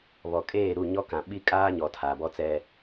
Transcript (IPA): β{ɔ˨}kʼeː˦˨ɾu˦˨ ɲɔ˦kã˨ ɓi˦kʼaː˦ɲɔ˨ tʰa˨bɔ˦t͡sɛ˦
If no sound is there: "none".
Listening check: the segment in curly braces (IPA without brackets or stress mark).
ɔ˨